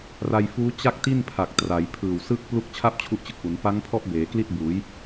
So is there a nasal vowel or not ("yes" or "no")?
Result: no